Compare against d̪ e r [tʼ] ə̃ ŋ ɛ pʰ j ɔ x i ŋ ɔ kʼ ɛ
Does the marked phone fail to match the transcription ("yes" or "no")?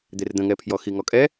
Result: yes